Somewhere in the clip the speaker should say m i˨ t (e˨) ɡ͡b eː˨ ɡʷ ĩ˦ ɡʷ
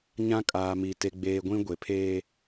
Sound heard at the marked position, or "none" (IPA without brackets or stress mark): e˨